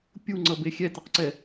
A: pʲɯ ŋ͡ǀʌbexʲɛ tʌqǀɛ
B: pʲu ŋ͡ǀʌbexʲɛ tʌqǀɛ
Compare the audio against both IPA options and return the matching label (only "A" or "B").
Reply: B